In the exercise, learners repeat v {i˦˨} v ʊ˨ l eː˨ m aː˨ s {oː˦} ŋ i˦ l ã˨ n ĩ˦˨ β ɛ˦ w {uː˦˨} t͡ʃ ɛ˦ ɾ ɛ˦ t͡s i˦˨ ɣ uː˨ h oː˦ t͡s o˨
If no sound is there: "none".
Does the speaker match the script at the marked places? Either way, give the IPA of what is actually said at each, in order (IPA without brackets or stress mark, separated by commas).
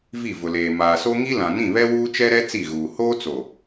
i˦˨, o˦, uː˦